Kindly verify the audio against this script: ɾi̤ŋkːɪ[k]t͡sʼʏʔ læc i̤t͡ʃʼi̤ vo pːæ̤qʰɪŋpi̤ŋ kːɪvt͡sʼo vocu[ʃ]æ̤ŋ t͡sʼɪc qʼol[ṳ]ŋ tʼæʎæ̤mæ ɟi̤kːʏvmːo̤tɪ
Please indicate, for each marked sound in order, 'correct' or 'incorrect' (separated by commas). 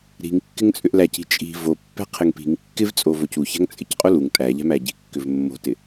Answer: incorrect, incorrect, incorrect